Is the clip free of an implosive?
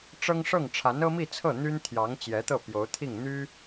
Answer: yes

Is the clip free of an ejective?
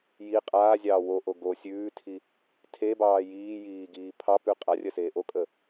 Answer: no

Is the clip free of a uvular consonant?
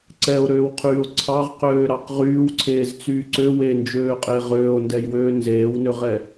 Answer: no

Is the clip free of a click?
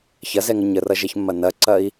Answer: no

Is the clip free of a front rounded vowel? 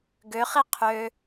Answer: no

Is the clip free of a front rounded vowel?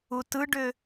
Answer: no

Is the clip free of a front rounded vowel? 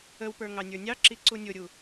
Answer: yes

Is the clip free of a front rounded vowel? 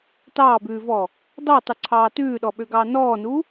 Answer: no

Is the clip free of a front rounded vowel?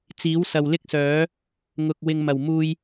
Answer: no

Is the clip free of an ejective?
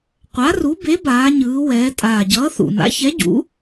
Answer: no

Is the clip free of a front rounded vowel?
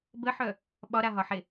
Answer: no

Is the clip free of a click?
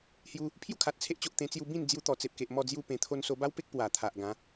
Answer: yes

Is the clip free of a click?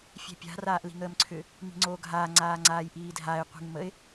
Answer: no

